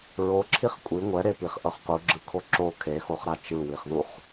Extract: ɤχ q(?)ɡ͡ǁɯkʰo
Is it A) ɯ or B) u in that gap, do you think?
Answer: B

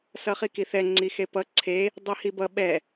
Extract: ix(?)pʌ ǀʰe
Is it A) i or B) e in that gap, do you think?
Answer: B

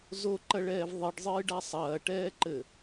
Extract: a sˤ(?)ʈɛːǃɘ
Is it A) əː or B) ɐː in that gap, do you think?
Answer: B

